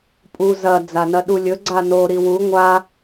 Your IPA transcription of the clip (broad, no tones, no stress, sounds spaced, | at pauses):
pʼ u z ɐ d͡z a n ɐ ɗ u lʲ ɵ ɡ͡ǀ a n o ɾ i w u ŋʷ a